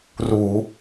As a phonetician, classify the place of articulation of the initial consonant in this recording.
alveolar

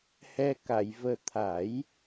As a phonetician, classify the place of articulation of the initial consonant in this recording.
glottal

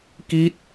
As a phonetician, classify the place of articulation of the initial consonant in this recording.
velar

